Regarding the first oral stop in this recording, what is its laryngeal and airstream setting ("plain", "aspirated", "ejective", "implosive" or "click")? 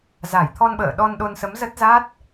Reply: aspirated